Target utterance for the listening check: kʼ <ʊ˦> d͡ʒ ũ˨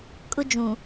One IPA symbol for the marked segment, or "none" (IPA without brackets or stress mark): ʊ˦